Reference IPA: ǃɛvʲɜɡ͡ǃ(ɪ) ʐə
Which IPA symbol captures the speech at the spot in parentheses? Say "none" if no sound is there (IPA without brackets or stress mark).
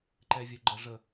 ə